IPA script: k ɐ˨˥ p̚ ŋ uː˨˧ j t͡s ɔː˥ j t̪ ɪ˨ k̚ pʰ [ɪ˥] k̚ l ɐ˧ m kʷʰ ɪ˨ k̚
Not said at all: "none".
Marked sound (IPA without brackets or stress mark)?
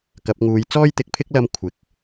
ɪ˥